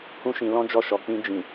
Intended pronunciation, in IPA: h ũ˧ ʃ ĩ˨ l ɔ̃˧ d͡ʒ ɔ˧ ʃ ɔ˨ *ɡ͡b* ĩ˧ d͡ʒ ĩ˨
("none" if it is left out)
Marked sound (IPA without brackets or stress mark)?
k͡p